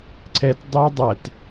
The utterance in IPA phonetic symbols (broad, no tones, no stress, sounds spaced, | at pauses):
ǀ ɛ t dˤ æ dˤ æ t